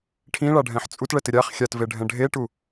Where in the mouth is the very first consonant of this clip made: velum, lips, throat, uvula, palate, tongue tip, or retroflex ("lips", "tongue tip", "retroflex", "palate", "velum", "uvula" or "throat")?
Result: retroflex